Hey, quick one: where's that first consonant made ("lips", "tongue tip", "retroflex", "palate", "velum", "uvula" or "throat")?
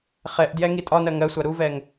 uvula